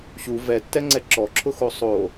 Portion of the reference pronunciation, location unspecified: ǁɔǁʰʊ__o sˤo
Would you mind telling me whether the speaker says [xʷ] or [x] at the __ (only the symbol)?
x